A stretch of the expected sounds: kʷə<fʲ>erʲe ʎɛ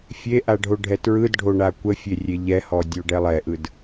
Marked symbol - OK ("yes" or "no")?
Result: yes